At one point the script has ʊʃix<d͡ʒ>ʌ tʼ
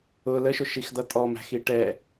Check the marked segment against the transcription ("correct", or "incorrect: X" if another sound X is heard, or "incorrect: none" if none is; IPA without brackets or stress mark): incorrect: d